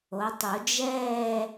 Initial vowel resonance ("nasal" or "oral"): oral